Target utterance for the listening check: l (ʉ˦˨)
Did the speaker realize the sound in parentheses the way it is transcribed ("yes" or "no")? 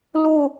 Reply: no